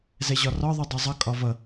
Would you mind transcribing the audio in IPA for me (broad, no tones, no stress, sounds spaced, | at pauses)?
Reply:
z ɛ ʑ ɒ r ɒ ðˤ u dˤ u zˤ ʌ kʼ ɒ v ʌ